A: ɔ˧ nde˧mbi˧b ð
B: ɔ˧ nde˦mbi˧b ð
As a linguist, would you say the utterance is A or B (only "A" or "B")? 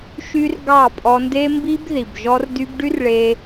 A